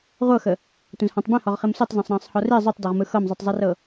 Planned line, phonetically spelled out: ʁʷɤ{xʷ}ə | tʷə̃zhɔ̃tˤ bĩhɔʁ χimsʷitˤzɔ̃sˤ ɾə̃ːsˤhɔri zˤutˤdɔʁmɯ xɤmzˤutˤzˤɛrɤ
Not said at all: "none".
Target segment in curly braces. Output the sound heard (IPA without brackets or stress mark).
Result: x